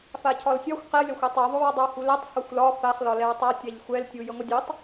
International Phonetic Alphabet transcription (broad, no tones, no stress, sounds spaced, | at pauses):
f a cʰ ɒ l sʲ ɒ xʷ q ɛ lʲ ɔ xʷ ɛ tˤ u ðˤ o w ɒ dˤ o w h u l ɛ tˤ h o xʷ l ɒ f a χ l ɒ l ɛ w tˤ a tʲ a ʎ xʷ ɛ l tʲ u j ə ŋʷ ə dʲ u tˤ